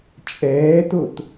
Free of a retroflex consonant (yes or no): yes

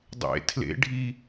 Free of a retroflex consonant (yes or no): no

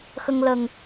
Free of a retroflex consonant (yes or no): yes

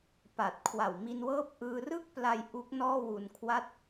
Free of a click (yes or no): yes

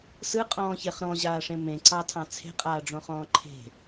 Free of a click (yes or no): no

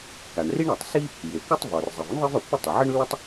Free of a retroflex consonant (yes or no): no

